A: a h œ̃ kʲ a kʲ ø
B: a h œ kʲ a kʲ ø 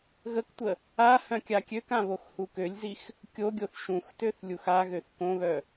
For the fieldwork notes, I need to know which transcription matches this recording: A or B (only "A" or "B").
A